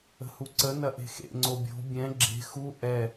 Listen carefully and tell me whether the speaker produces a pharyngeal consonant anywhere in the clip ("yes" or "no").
no